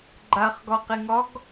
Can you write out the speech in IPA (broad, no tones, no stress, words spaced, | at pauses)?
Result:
ɡ͡ǃaχɡɒqeŋɒɡ